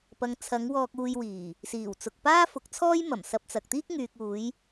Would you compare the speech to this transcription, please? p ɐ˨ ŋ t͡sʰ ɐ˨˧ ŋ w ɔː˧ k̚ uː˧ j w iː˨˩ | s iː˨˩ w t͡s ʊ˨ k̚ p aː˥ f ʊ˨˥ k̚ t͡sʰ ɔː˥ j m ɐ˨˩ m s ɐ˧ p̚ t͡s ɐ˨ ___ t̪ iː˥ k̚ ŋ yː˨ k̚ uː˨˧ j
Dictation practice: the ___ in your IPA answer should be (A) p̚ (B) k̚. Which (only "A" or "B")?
B